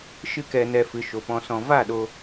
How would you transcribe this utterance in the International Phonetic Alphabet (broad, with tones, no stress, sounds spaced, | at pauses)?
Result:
ʃ ɨ˧ k ɛ˨ n ɛ˨ f ɨ˨ ʃ o˨ p ɔ̃˧ s ɔ̃˧ v a˦˨ ɗ o˧